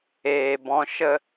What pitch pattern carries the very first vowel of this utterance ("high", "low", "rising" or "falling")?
low